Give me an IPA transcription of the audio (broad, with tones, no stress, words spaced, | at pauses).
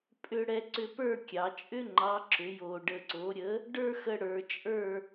pʼʏ˧ ɽɛ˧ǀʏ˧pə˞˥˧ kʲɑ˩˧t͡ʃʼʏ˥ŋ͡ǃɑ˨˥ ǁʏ˩˧jo˨˩ ɖə˨˩ǀo˩˧ɾʲə˨˥ | ɖə˞˥xə˧ ɽə˞˩˧t͡ʃʼə˞˥˧